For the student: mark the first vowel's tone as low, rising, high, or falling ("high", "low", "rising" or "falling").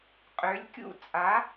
rising